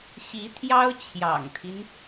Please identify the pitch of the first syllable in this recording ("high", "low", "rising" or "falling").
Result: rising